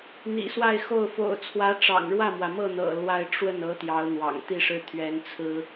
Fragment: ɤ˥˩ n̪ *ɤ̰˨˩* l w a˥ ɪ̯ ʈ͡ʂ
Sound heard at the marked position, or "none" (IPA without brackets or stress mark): ɤ̰˨˩